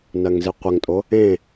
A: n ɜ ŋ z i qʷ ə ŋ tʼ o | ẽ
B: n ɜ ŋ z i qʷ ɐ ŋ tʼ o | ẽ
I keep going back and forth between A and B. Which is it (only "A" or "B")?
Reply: A